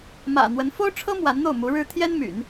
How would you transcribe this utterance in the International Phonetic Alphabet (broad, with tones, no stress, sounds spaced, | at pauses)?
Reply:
m ä̰˨˩ n̪ w ə˧˥ n f o˥ ʊ̯ ʈ͡ʂʰ ɤ˥ m w a˧˥ n n̪ o˥˩ ʊ̯ m u˧˥ ɻ ɻ̩˥ t̪ʰ j ɛ˥ n m y̰˨˩˦ n